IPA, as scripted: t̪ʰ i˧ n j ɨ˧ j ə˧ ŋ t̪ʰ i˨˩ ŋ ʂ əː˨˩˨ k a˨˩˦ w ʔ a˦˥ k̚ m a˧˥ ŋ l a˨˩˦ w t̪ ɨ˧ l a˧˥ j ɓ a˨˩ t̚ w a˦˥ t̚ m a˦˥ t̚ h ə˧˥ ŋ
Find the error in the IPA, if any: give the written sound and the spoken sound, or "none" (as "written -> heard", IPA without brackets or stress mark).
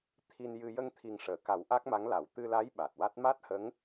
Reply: none